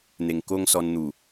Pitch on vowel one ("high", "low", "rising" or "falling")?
low